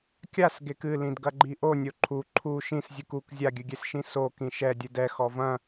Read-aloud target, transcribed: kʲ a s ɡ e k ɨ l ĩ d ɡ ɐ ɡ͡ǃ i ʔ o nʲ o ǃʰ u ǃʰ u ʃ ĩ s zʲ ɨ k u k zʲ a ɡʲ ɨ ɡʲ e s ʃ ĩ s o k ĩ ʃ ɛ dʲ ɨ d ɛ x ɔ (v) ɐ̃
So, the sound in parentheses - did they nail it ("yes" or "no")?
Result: yes